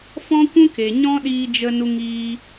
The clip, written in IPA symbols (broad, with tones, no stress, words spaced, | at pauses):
fɔ̃˦kʷũ˦ke˨ ɲɔ̃˦ɗiː˧d͡ʒə˧nu˧ ŋiː˦